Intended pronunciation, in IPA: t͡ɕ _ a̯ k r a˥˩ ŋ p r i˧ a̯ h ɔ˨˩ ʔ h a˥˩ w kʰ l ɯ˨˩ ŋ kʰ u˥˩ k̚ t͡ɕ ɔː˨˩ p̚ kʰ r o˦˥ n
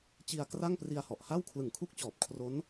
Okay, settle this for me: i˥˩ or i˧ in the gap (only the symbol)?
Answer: i˧